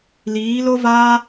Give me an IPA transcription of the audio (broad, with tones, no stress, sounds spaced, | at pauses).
l iː˨˦ l o˦ v aː˦